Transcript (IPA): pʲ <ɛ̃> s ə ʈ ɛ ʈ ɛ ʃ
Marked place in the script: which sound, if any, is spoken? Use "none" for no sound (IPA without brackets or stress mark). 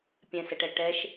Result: ɛ̃